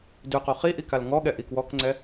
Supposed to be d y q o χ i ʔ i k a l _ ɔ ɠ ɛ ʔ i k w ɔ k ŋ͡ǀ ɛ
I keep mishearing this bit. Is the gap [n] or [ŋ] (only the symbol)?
ŋ